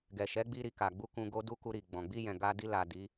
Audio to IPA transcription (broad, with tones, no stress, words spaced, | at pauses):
ɡɛ˨ʃɛ˨˦ɡ͡bi˧ ɾi˨ka˨ ɡ͡bu˧ kũ˧ɡo˦ du˦ku˧ɾi˨ ɡ͡bɔ̃˨ ɡ͡bi˧jɛ̃˨ ɡa˧di˧ la˨ di˨˦